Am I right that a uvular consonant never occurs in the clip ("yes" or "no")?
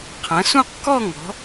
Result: no